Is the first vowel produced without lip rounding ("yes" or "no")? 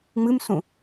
yes